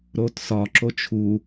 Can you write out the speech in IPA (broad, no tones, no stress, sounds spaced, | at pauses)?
ɾ o t s ɒ ǁ o t͡ʃʰ u